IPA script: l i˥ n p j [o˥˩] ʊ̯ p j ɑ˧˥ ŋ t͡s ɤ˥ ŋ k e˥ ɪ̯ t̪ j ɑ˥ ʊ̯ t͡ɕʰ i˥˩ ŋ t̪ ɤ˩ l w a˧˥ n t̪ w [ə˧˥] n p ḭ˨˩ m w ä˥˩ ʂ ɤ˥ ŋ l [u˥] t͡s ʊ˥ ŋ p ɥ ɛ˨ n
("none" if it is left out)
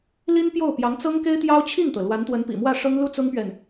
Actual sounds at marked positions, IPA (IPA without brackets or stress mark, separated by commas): o˥˩, ə˧˥, u˥